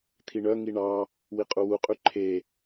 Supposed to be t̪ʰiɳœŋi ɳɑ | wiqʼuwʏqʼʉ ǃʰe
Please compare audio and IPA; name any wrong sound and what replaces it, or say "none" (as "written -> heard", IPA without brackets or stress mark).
ʏ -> u